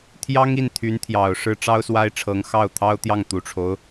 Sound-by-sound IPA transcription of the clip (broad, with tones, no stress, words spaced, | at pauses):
t̪ʰjɑ˥ŋ i˥˩nt̪ʰy˧˥nt̪ʰjɑ˨˩ʊ̯ʂɻ̩˥ ʈ͡ʂɑ˥ʊ̯swa˥ɪ̯ʈ͡ʂʰɤ˧˥ŋ xɑ˥˩ʊ̯ t̪ʰɑ˥ʊ̯t̪jɑ˥˩ŋ t̪u˨˩ʈ͡ʂʰo˦ʊ̯